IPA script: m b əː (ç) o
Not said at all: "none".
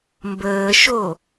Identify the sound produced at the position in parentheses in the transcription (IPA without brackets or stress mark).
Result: ʃ